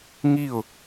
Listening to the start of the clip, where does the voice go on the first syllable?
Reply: falling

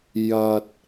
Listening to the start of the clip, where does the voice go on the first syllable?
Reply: low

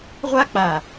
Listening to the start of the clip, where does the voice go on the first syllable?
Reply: high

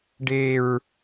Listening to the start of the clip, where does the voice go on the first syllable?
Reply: low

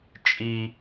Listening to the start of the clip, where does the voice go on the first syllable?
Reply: high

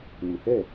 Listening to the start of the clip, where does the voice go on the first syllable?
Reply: low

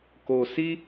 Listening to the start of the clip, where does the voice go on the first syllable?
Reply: low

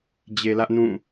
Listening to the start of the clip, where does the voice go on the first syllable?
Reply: low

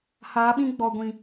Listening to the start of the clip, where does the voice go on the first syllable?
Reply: rising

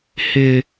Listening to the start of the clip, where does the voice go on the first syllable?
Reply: high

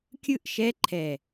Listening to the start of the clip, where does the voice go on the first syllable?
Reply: falling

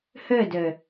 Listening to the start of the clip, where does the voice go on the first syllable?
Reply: falling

